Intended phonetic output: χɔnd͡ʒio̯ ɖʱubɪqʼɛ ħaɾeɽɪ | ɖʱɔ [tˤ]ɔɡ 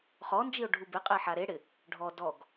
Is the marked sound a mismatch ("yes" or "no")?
yes